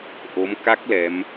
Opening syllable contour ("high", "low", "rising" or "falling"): rising